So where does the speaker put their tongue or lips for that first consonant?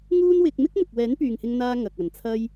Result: velum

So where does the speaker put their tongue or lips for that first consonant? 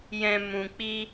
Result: palate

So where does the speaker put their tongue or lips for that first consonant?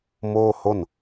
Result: lips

